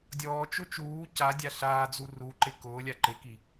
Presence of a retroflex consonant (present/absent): absent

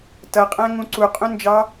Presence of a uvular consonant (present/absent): present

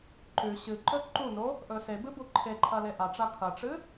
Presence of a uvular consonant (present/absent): absent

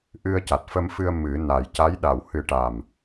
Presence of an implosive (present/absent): present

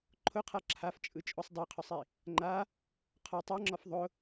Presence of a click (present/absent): present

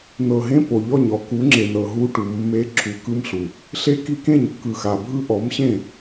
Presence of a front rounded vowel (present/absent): absent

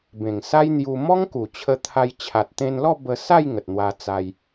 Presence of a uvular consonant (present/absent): absent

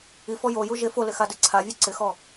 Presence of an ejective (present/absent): absent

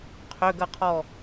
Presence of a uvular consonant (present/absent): present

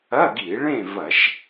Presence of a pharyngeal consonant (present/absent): absent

